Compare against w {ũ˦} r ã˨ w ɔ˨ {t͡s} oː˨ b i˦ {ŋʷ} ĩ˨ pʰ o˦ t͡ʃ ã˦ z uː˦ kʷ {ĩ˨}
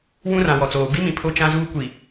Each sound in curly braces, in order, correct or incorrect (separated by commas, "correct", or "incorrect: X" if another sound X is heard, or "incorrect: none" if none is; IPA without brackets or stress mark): correct, correct, incorrect: m, incorrect: i˨